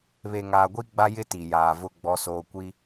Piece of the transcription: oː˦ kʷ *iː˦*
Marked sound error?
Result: yes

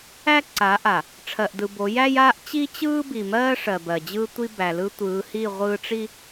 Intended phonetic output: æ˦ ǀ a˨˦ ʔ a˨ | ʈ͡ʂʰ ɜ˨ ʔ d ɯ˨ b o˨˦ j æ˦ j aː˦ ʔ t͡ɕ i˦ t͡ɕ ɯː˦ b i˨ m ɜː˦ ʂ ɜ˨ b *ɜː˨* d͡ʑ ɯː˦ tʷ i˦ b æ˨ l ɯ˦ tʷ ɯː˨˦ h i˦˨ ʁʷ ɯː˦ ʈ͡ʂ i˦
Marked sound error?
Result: yes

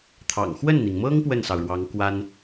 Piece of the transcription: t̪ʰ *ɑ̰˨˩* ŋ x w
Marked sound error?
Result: no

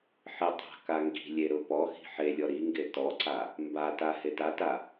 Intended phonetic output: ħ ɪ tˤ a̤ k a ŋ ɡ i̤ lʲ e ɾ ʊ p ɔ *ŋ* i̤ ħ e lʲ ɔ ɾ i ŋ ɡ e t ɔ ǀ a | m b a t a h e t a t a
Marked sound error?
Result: yes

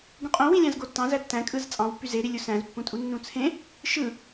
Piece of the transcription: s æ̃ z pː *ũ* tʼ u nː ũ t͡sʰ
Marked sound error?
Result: no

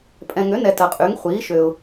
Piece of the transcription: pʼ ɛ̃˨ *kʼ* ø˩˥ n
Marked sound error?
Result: yes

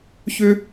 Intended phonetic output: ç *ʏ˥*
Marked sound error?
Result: no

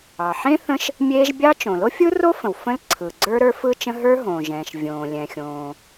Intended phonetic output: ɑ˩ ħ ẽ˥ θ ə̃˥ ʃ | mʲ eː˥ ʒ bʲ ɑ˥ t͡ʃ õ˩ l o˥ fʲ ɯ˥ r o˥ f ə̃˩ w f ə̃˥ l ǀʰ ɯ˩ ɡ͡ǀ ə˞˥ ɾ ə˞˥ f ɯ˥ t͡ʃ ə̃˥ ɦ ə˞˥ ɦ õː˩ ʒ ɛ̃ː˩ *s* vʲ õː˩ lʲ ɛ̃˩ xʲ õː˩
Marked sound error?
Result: yes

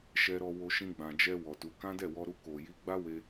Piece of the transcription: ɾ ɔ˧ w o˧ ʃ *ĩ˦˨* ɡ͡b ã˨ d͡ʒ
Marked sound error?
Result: yes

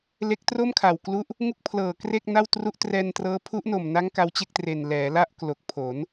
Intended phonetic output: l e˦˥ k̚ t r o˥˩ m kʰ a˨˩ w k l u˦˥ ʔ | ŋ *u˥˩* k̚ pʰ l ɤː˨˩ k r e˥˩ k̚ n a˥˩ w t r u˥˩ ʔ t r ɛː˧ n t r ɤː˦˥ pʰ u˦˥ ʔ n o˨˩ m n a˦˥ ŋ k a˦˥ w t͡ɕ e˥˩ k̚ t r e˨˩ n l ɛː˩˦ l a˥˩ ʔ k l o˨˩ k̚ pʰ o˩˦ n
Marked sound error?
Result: no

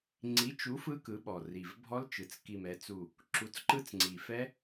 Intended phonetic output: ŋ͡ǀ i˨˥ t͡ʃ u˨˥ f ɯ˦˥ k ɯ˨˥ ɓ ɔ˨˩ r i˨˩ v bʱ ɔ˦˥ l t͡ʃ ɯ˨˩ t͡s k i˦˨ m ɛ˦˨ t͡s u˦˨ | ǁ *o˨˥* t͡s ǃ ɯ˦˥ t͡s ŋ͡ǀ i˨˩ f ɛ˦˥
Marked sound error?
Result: yes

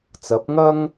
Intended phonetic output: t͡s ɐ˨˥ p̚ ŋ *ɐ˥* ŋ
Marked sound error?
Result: no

